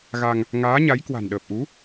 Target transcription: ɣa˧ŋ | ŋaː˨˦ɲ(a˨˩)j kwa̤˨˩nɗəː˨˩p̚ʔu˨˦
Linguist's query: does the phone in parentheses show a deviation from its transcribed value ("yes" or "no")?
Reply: yes